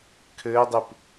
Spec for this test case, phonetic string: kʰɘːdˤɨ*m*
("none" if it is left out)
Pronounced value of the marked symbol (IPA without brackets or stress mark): p